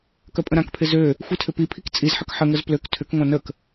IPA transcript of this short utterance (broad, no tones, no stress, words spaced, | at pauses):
kœpʼə̃ɾãkpʰɪ zø | xʷitʰʏpipʰik t͡sʼizħək ħəŋəz pløk tʰʏkŋʷã nək